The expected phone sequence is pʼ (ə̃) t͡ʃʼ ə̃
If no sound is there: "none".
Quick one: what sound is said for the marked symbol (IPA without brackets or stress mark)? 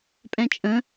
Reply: ɛ̃